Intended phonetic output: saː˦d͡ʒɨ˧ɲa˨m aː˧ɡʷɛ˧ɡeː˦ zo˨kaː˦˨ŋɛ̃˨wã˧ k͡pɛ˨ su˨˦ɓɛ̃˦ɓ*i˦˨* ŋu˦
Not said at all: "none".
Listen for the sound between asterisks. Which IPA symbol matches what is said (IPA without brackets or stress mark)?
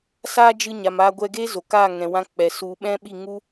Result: i˦˨